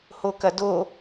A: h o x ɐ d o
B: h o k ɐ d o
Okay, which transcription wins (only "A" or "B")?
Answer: B